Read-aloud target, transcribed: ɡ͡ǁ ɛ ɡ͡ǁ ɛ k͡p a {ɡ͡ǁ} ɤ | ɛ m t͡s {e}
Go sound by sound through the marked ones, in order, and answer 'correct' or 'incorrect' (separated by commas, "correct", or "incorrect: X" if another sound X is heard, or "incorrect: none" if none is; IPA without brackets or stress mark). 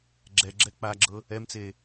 correct, correct